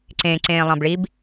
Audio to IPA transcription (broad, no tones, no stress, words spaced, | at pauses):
ǀẽ ǀẽːlˠɑ̃bɭib